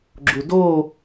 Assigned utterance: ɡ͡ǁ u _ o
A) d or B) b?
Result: A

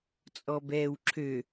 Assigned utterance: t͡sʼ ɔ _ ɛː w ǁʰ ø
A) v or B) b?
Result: B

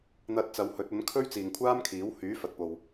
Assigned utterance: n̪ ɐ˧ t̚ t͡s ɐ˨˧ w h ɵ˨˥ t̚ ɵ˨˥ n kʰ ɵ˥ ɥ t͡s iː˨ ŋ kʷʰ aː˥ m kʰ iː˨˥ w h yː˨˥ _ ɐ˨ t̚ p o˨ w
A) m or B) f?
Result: B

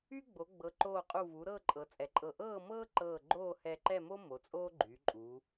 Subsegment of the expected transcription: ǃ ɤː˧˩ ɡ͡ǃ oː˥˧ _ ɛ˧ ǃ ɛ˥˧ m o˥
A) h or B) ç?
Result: A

